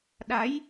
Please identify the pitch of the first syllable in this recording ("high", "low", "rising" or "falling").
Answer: rising